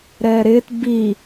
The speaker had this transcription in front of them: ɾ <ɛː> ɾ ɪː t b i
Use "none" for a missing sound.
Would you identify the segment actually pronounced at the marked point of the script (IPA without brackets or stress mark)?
ɛː